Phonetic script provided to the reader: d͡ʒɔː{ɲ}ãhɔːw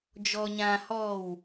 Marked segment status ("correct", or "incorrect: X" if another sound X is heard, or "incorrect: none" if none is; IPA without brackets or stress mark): correct